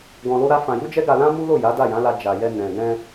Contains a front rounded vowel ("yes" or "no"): no